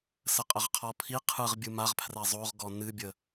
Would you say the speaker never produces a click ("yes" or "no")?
yes